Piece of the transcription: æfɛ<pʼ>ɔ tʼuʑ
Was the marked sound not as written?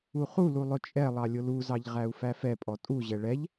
no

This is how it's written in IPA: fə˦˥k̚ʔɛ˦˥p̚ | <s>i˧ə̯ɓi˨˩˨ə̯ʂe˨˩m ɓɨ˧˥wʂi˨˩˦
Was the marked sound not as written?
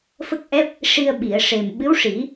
yes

